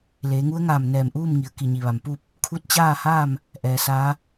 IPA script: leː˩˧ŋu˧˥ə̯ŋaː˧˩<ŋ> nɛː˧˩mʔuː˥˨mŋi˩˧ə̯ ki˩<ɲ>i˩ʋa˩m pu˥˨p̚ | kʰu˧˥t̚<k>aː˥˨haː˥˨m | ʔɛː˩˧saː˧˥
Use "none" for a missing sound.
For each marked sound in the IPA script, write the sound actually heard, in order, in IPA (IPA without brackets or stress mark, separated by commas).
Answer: m, ɲ, t͡ɕ